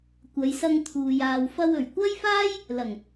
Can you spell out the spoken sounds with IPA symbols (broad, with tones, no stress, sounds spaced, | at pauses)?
kʷ ɐ˨˧ j s ɐ˧ ŋ t̪ʰ uː˨ j aː˨ w f ɐ˧ w ɵ˨˩ ɥ kʷ ɐ˥ j f aː˥ j | l ɐ˨˩ ŋ